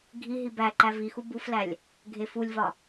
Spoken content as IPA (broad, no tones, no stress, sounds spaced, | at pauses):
ɡʱ i ɦ i b æ ǃ æ v i x u b u f l æ lʲ | ɡʱ e f u lʲ v ɒ